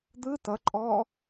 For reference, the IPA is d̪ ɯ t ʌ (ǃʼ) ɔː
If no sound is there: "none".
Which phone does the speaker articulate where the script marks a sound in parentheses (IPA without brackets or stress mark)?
ǃʼ